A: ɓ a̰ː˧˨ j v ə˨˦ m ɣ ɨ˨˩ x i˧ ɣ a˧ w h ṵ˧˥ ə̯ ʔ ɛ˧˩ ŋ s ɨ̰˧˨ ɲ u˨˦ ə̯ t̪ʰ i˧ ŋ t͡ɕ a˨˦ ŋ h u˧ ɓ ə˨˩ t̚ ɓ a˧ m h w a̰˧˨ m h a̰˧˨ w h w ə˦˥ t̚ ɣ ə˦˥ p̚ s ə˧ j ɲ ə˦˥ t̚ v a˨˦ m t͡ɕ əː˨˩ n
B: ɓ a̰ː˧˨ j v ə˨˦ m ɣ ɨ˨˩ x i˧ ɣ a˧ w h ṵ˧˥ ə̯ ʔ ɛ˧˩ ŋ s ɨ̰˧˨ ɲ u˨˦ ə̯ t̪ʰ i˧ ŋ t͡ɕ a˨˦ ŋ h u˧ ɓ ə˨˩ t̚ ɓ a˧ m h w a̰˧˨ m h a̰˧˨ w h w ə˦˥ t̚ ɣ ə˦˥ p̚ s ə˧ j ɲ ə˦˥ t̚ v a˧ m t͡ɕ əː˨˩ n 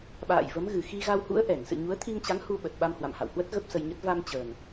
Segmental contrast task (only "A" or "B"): B